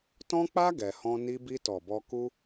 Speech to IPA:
t ɔ̃˦ k͡p a˦ ɡ ɛ˧ h ɔ̃˦ n i˧ b i˧ t ɔ˨ b ɔ˧ k u˦

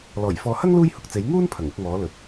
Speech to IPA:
l ɔː˨˩ j f ɔː˨ h ɐ˥ ŋ l uː˥ j h ʊ˨ k̚ t͡s e˨˥ j ŋ uː˥ n pʰ ɐ˨˩ ŋ ʊ˨˥ k̚ m ɔː˨˥ l ɵ˨ t̚

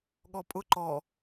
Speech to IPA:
ɠ ɔ pʼ ʊ ǃ ɔ

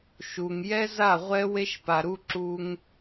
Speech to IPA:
ʃ u˨ ŋ j ɛ˦ z a˦˨ ʁʷ ɛ˦ w e˦ ʃ p a˨ ɾ u˦ ǁ u˦ ŋ

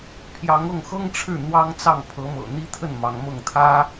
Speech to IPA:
pʰ j ɑ˧˥ ŋ ɤ˥˩ ŋ x ɤ˥ ŋ ʈ͡ʂʰ ɻ̩˥˩ n̪ w ɑ˥ ŋ t͡s ɑ˥˩ ŋ pʰ ɤ˧˥ m ɤ̰˨˩ n̪ i˥ t̪ʰ ə˥˩ n m ɑ˧˥ ŋ m ɤ˥˩ ŋ t̪ʰ ä˥

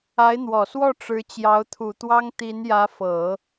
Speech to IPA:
a˧˥ ɪ̯ n̪ w ɔ˨˩ s w ɔ˥˩ ʈ͡ʂ ɻ̩˧˥ t͡ɕ j ɑ˧˥ ʊ̯ t̪ʰ u˨˩ t̪ w ɑ˥ ŋ t̪ i˧˥ n j ä˧˥ f ɤ˨˩˦

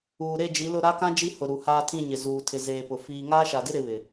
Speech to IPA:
uː˨ ɾ e˦˨ d͡ʒ i˨˦ l ʊ˦˨ ɾ a˦ k ã˦ d͡ʒ i˦ h ʊ˨ ɾ u˨ h aː˦ tʰ ĩ˦˨ ɲ ɪ˨ z uː˨ tʰ ɪ˨ z eː˨ p ʊ˨ f iː˨ ŋ aː˦ ʃ a˨ d ɪ˦ ɾ ɪ˨˦ β ɪ˨

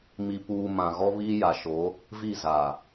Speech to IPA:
m i˨ p uː˨ m ã˨ ɣ ɔ˦ β iː˦ j a˨ ʃ o˨˦ | v i˦˨ z a˨

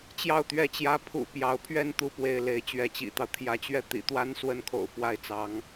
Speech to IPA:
t͡ɕ j ɑ˥˧ ʊ̯ t̪ ɥ ɛ˥˩ t͡ɕ j ä˥ pʰ ṵ˨˩ p j ɑ˧˥ ʊ̯ pʰ ɥ ɛ˥˧ n t̪ u˥˧ p w e˥˩ ɪ̯ l e˧˥ ɪ̯ t͡ɕ ɥ ɛ˧˥ t͡ɕ ḭ˨˩ t̪ ɑ˦ ʊ̯ t̪ʰ j ä˧˥ t͡ɕ ɥ ɛ˥˩ t̪ ḭ˨˩ t̪ w a˥ n s w ə˥ n kʰ o̰˨˩ ʊ̯ f w a˥˩ ɪ̯ t͡s ɑ˧˥ ŋ

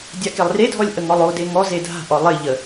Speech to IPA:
dʲ a k e lˠ r e dʱ ɔ lʲ ʔ ə ŋ ɔ lˠ o d e ŋ ɔ z e dʱ a̤ ʔ ɔ lˠ ɪ ʎ ə

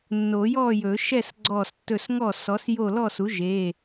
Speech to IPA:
nː o˨˩˦ j ɔ˥˨ j ɵ˨˩˦ ʃ ɛ˥˨ s ɡ͡ǀ ɔ˧˩ s tː ɵ˧˩ s ŋ ɔ˧˩ s ɔ˩˥ s j o˥˨ l ɔ˥˨ s u˩˥ ʒ e˩˧˩

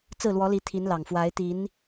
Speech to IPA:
t͡s ɹ̩˥˩ l w ɔ˧˥ l i˧˥ t̪ʰ i˧˥ n l ɑ˨˩ ŋ f w a˧˥ ɪ̯ t̪ i˧˥ n

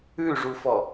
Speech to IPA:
ʉ ʐ u f ɔ

